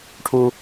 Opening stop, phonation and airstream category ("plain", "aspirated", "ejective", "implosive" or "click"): aspirated